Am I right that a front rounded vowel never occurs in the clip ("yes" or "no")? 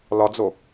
yes